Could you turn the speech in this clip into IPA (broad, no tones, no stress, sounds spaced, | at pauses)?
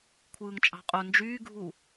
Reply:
kʷʰ ɯː ŋ t͡ʃʼ ɑ̤ qʼ o n d͡ʒ yː ɡʱ u